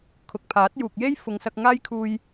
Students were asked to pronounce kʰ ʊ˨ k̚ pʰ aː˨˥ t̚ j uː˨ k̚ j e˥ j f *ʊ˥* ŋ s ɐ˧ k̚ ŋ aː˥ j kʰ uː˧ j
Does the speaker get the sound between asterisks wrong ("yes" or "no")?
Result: yes